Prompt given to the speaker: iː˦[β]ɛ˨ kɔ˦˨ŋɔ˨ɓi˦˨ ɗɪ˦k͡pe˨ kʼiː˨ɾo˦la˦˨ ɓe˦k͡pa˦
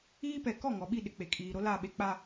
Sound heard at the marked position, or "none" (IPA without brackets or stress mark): p